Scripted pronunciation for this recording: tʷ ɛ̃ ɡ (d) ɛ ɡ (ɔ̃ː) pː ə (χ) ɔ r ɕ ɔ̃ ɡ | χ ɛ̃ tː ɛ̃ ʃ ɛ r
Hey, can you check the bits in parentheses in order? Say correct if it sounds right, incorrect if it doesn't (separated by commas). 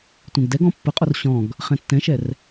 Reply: correct, incorrect, incorrect